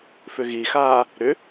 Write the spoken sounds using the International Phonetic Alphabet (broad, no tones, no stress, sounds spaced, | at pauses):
f ʏ ɣ i x aː | ɾ ʏ